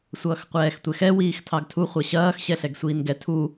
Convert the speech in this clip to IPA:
sʷ ʌː x qʷ ɛː x tʷ ɛ x ɛ w iː x tʰ ɑ ɡ tʰ u χʷ ɐ ɕ ɐː x ɕ ɛ ɬ ɛ ɡ sʷ iː n ɡ ɛ tʰ u

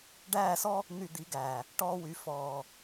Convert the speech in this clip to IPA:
ɖ æː˦˨ s ɔ˦ | n̪ y˧ d̪ i˨˦ ɡ æː˨ | ʈ ɔː˧ w y˨ f ɔː˨

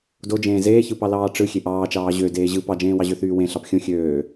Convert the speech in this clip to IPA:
d o d͡ʒ ẽː z eː ç ɯ p ɑ l ɑː ʈ͡ʂ ɯ xʲ e ʔ ɑː t͡ʃ ɑː ʑ ø d eː ʑ ɯ p ɑ d͡ʒ ẽː w ɑ ʑ ø θ yː w ẽ ɬ ɑ p xʲ õ xʲ øː

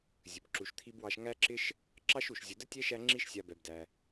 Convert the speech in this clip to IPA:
zʲ ə˩ b ǁ u˨ ʃ t̪ʰ i˥ b w ɑ˦ ʃ ŋ æ˥ ǁ ɪ˥ ʃ | ǁ ɑ˥ ʃ u˩ ʃ zʲ ə˨ d ə˥ tʲ ɛ˥ ʃ æ˦ ŋ͡ǁ i˦ ʃ sʲ a˨ b ɛ˩ b d æ˩

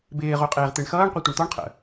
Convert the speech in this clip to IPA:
b ɪː ʁ o qʼ eː ʁ t̪ e ɳ x ʌː ɳ qʷ e tʷ ɪ ɳ t̪ ɔ ɳ qʰ ə̰

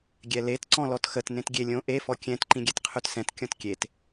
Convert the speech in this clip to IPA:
ɡʲ ɛ l e t ǀ ɔ̃ l ɔ t x ə t n ẽ t ɡʲ e lʲ õ ʔ e f ɔ kʲ ɛ̃ t ǃ ĩ ɡʲ ɛ t qʰ ø t s ɛ̃ t kʲ ɔ̃ t kʲ e t

